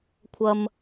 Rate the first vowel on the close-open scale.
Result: open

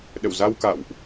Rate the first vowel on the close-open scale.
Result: mid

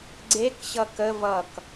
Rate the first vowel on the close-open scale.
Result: mid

